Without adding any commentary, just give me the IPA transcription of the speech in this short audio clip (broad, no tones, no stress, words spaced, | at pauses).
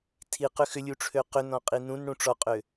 tʰiqʏ xʏlʲuʈ͡ʂʰø qʏnɔ̃qʼi nũnɽũ ʈ͡ʂɔqʼø